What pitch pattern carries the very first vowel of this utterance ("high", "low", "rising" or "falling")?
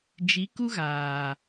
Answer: rising